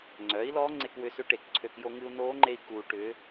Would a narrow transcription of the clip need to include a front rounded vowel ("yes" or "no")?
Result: yes